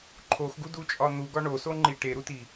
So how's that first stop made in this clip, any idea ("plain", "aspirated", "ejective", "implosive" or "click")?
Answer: click